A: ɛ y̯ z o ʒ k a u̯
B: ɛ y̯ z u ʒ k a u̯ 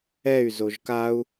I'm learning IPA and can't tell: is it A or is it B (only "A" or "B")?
A